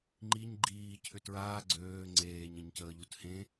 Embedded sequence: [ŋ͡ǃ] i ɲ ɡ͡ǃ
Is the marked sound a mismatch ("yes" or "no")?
no